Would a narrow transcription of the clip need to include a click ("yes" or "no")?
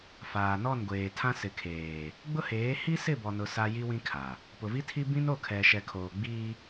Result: no